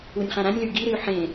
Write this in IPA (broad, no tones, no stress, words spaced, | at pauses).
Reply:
unʲχã ɾãnʲly ɡiɾɨy̯ ħẽ